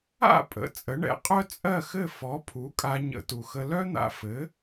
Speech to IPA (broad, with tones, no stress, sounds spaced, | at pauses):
a̰˥˩ pʼ ə̰˩˥ t͡sʼ ə˩˥ ɳ ɛ̰˩˥ qʼ œ˥ t͡sʼ ɜ˥˩ x ɘ˥˩ f ɔ˩˥ pʰ u˩˥ kʼ a˧ ɲ ə̰˧ t u˩ x ə˧ l œ˥ n̪ a̰˧ f ɘ˩˥